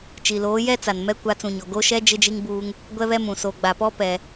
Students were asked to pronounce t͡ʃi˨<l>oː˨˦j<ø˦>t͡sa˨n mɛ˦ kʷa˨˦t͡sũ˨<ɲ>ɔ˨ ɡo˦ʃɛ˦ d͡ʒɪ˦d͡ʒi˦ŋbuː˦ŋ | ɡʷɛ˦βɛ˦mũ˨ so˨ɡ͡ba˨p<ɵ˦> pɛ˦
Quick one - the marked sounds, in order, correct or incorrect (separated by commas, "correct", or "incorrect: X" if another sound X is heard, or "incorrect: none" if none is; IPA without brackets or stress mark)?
correct, incorrect: ɛ˦, correct, incorrect: ɔ˦